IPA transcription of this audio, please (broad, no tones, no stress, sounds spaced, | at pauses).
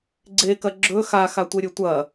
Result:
ɡ͡ǀ e k ɐ ɡ͡ǁ ɵ x a x a tʷ e ɾʲ ɵ tʷ ɐ